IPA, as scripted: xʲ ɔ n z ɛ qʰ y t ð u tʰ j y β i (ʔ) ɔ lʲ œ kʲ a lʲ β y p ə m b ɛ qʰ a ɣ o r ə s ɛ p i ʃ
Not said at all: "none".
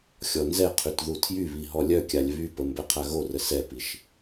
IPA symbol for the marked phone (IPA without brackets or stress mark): ɦ